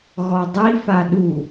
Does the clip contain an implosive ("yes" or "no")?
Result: yes